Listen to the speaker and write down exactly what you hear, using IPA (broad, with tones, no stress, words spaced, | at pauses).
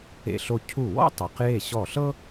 ḛ˧ɬo˧ cʰu˧˩ wɔ̰˥tˤe˩˧q je˧˩ ɕɔ˧˩ɬɤ˥